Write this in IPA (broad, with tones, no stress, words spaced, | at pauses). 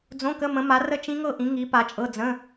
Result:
d͡zõ˧˥˧kə˧˥˧mə̃˨˦ma˨˦ rə˥˧t͡ʃĩ˦˥ŋɤ˥˧ʔĩ˨˦ ŋi˨˦ pa˨˦t͡ʃʼɤ˧˥˧ d͡zə̃˧˥˧